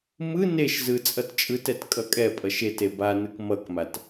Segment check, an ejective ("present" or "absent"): present